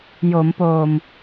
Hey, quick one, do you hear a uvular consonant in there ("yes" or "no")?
no